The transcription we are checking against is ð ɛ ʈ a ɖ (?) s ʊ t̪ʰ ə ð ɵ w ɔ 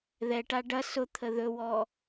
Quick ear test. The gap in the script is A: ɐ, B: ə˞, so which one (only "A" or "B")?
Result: A